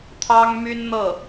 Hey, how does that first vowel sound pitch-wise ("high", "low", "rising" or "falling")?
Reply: high